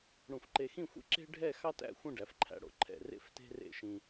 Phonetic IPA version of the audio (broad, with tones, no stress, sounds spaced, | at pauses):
ɽ ũ˧˩ f ǃ e˧ x ĩ˥˧ xʷ ḛ˥ ǁ e̤˥ ɖʱ ɛ˥˧ x ɑ˥ t æ̰˥˧ xʷ ĩ˥˧ ɖ æ˩˧ f ǃʰ æ̰˧ ɽ o̰˧˩ ǃʰ ɛ̰˧˩ r ḛ˥˧ f t e̤˥ r ḛ˥˧ ʃ ĩ˧